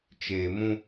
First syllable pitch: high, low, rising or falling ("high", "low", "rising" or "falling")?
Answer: low